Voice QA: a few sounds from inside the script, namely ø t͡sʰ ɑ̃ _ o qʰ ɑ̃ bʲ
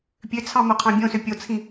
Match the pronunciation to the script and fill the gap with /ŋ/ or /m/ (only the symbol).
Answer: m